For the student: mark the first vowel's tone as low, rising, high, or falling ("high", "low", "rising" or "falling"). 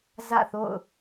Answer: falling